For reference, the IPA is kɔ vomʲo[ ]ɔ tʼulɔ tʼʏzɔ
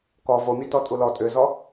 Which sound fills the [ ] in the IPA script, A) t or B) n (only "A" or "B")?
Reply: A